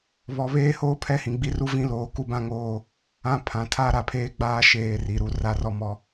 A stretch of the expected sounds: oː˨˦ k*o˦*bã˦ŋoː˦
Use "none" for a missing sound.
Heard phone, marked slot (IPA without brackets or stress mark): u˦